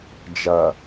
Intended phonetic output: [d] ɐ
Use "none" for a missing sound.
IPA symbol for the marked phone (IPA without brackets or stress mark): d͡ʒ